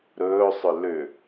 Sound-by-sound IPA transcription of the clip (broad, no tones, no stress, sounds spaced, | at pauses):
ɾ ɵː sˤ ʏ l ʏ